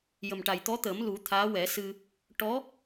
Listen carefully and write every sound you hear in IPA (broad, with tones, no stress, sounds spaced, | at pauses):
j ə˨˩ m ʈ a˨˩ j t̪ ɔ˧˥ t̪ əː˨˩˦ m l u˨˩˦ t̪ʰ aː˧˥ w ɛ˨˩˦ s ɨ˧ | ʈ ɔ˧˥